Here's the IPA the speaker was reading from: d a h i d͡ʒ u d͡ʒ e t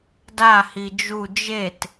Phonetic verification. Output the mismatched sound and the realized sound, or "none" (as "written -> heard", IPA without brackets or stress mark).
none